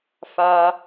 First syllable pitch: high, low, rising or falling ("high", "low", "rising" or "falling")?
high